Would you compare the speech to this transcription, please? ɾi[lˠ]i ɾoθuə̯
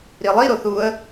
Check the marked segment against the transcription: correct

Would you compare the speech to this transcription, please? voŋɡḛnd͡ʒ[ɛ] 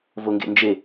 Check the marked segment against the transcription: incorrect: e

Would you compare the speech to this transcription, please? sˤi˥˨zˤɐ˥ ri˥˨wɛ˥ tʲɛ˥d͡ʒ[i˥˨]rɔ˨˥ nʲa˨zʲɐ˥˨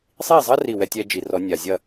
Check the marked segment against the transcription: incorrect: i˨˩˦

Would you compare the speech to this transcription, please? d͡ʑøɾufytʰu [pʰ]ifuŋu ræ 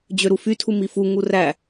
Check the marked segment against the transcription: incorrect: m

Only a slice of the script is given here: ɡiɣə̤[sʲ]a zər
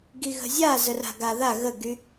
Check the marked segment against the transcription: incorrect: zʲ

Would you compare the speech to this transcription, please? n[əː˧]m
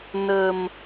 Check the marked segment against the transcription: incorrect: ə˧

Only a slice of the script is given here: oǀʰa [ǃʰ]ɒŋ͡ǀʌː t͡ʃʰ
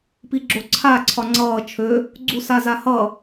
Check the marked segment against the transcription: incorrect: ǀʰ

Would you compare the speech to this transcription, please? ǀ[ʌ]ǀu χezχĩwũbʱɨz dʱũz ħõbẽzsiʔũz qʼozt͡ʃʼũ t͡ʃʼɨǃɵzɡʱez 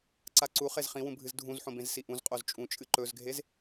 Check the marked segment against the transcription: incorrect: a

